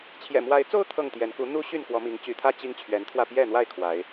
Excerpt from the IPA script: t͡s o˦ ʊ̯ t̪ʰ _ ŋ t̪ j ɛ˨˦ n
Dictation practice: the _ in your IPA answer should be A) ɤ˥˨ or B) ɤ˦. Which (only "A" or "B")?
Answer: A